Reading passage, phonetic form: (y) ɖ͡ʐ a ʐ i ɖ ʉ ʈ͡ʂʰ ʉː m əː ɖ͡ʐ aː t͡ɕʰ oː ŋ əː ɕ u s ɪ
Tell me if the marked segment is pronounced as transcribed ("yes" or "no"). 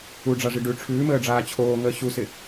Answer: no